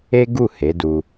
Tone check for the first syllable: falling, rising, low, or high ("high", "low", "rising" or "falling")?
high